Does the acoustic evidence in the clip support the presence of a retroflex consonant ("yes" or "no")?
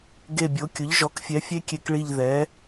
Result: yes